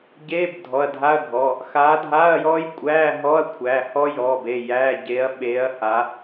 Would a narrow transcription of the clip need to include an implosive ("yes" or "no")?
yes